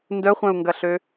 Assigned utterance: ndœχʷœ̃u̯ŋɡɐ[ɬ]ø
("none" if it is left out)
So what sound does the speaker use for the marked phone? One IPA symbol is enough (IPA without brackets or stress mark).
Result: ɬ